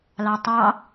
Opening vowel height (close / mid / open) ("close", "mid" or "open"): open